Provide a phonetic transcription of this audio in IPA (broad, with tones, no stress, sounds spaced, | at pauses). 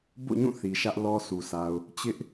b o̰˦˨ ɲ ũ˦˨ θ i˨ ʃ ä˦ ʔ l ɔ˦ sʰ u˨ sʰ a˨ ʊ̯ | t͡ɕ ɪ˦ ʔ